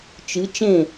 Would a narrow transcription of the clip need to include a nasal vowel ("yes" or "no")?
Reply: yes